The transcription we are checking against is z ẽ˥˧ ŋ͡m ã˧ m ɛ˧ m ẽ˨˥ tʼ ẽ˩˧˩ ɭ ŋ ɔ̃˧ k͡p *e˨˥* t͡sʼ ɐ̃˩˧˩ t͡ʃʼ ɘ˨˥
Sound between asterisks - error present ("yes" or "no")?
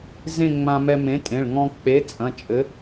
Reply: no